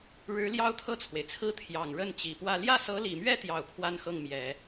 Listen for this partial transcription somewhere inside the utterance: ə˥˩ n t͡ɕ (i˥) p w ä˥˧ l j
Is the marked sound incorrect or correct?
incorrect